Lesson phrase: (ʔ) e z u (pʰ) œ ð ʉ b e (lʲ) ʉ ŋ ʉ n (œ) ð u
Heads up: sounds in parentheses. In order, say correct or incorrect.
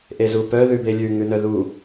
correct, incorrect, correct, correct

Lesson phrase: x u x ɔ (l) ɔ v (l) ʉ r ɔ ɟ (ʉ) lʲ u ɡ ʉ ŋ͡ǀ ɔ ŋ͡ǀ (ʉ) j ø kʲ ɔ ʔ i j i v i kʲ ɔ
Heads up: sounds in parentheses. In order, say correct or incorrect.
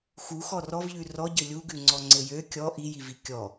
incorrect, incorrect, incorrect, incorrect

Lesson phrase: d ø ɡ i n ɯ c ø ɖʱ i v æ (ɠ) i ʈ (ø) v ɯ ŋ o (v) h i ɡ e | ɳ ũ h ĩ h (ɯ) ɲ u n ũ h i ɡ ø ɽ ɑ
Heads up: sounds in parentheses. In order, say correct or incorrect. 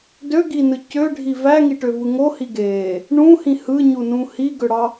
incorrect, correct, incorrect, correct

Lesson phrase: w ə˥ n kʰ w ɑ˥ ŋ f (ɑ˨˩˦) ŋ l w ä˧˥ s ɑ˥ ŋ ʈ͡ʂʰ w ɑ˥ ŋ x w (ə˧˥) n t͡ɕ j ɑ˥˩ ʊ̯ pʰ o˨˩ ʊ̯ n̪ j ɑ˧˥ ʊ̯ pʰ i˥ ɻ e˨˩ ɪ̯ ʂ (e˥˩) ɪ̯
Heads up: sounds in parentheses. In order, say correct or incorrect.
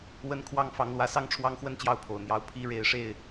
incorrect, incorrect, correct

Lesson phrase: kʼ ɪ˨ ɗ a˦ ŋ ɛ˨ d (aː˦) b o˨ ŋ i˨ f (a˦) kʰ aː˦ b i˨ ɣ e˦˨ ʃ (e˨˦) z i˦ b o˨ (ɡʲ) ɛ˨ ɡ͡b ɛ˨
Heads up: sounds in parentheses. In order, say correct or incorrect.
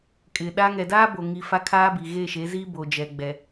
correct, correct, correct, incorrect

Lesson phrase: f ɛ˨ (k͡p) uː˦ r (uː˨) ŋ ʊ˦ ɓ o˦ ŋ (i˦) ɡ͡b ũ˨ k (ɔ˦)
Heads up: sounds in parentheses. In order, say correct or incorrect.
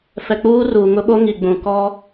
correct, correct, incorrect, correct

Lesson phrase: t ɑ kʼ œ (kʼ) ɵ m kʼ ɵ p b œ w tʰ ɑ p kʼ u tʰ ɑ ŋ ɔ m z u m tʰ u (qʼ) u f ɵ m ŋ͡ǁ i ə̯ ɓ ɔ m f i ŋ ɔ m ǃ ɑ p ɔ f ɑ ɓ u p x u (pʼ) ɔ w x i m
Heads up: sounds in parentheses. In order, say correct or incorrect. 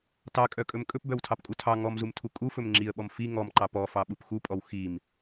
correct, incorrect, correct

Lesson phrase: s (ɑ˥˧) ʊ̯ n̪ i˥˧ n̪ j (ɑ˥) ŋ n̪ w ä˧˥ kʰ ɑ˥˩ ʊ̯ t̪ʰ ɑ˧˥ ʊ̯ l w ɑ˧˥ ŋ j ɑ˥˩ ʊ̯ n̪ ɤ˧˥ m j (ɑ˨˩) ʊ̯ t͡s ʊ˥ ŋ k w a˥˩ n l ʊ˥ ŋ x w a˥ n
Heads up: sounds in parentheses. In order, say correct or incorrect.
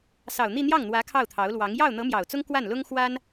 incorrect, incorrect, correct

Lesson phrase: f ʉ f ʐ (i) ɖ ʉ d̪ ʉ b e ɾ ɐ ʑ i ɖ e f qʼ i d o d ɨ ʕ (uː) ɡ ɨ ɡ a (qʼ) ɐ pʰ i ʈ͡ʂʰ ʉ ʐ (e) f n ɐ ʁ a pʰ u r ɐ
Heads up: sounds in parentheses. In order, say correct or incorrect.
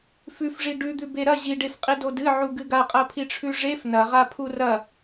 correct, incorrect, correct, correct

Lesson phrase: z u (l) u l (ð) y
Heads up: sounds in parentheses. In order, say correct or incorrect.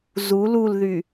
correct, correct

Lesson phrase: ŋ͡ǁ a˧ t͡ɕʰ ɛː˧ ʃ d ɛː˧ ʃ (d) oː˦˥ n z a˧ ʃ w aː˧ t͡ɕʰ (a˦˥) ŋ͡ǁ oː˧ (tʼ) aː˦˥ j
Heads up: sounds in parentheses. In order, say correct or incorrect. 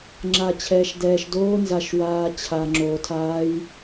correct, incorrect, incorrect

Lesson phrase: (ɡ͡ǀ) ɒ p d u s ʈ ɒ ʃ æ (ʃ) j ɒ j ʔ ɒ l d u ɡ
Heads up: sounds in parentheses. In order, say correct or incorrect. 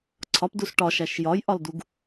incorrect, correct

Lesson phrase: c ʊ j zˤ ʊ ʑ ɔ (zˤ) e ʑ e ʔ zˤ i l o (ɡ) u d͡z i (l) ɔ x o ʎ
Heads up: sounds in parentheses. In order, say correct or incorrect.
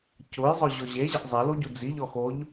incorrect, incorrect, incorrect

